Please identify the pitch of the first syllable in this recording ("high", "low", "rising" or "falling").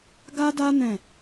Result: high